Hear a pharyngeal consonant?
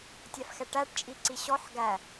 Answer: yes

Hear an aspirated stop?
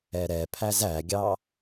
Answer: yes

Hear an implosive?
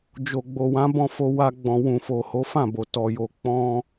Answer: no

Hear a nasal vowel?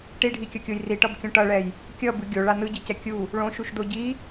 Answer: yes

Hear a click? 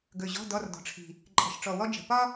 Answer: yes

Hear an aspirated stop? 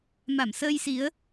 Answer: no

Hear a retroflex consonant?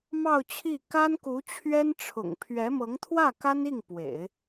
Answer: yes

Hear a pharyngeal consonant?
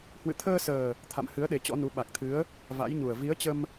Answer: no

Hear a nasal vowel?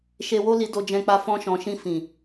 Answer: yes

